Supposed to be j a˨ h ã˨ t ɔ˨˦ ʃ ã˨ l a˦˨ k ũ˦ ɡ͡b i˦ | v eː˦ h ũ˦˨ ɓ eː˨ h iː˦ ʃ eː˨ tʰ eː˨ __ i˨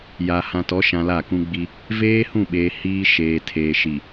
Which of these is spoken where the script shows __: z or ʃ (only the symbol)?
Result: ʃ